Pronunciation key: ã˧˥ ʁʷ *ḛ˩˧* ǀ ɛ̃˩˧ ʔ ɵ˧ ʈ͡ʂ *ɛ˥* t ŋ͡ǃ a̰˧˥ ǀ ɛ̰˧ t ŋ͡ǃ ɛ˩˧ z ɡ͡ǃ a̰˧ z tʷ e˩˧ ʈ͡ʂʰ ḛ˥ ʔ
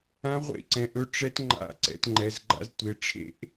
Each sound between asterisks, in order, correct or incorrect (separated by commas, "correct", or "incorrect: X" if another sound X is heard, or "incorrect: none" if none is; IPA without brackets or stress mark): incorrect: ḛ˧˥, incorrect: ɛ˧˥